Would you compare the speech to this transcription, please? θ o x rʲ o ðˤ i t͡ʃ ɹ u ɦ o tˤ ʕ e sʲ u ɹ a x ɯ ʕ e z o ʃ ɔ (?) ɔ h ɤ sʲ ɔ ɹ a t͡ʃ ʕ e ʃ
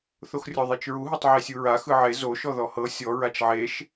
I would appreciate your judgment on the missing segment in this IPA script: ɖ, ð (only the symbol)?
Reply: ð